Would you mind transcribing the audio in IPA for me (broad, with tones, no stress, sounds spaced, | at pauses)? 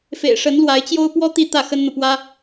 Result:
f ḛ˨˩ ɪ̯ ʂ ə˧˥ n l w a˧˥ ɪ̯ t͡ɕ j o˥ ʊ̯ p w ɔ˥ t̪ i˥˧ t̪ ä˥˩ x ə˥ n n̪ ɤ˨ p w ä˥